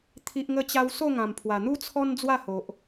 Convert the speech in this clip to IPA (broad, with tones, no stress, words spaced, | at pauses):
t̪ʰi˨ʔŋə˧t͡ɕa˧w so˥˧ŋã˨˩mpʰwa˨˩n̪u˦ t͡sʰɔ˦n d͡zwa˥˧ho˨ʔ